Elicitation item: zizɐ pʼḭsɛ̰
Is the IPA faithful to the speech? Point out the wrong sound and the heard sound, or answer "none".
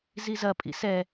ɛ̰ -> ɛ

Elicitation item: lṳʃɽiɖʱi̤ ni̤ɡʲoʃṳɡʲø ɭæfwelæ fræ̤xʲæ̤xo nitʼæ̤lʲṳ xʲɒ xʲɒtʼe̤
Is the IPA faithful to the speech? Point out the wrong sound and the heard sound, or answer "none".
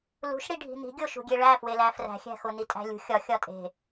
ø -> e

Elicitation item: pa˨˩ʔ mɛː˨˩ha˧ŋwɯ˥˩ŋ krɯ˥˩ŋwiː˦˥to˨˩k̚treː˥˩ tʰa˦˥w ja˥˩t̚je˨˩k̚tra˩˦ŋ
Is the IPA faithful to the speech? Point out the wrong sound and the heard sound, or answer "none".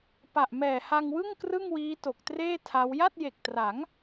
none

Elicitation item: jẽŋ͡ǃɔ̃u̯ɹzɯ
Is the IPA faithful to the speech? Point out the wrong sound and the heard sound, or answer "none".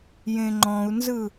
ɹ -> n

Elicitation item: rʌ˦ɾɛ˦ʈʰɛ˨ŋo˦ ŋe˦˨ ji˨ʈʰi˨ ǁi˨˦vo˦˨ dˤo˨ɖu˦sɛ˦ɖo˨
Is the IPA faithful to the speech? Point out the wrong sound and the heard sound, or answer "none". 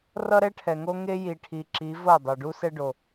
e˦˨ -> e˦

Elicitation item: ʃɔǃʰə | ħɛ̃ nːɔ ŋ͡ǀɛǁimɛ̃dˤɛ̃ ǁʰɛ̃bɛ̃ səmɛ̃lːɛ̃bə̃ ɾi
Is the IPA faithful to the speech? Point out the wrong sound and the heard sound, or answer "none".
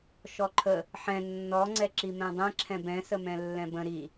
none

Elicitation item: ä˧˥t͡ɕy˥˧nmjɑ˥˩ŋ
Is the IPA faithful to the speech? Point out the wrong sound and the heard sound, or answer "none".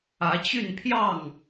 m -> pʰ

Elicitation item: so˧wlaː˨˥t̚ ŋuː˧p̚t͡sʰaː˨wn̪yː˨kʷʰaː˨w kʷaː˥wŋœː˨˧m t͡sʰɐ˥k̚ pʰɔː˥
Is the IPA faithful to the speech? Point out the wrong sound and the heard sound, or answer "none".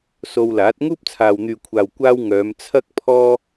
uː˧ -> uː˥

